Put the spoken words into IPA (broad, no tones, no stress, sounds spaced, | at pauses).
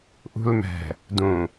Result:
ʔ ṳ l m ɛ̤ | d ũ